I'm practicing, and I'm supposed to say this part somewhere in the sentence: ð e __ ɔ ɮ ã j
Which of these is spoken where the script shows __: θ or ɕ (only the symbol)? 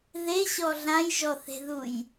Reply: ɕ